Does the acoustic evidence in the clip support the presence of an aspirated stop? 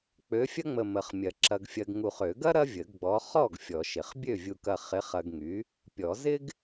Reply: no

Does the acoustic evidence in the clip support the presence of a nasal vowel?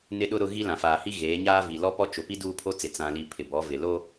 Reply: yes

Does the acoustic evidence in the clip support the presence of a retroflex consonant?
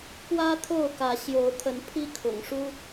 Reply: yes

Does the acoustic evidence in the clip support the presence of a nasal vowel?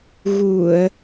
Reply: no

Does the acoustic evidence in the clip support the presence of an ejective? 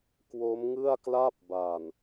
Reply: no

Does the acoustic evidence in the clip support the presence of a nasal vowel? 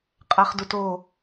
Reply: no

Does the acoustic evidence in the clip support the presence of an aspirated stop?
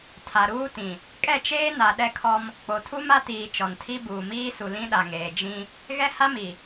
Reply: yes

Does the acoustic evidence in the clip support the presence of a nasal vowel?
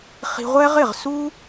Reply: no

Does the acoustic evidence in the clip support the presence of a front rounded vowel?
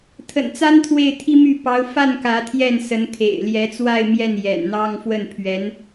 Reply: yes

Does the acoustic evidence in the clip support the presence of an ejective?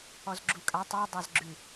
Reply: yes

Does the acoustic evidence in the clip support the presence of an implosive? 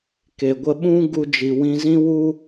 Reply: yes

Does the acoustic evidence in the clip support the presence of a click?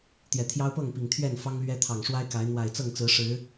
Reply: no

